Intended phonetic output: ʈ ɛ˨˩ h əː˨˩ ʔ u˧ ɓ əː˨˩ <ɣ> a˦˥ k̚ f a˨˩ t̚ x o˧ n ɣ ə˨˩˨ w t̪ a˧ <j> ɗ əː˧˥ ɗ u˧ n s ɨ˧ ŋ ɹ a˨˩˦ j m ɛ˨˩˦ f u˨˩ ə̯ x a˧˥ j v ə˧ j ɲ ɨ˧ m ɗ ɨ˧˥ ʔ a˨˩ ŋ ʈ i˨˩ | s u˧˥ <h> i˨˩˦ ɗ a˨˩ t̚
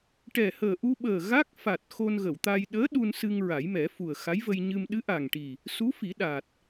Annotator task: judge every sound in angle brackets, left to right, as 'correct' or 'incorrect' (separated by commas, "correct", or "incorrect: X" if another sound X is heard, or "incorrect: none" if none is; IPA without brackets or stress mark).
correct, correct, incorrect: f